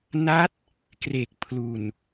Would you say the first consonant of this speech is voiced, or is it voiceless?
voiced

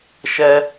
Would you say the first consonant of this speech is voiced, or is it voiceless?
voiceless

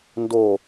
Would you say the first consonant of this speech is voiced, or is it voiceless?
voiced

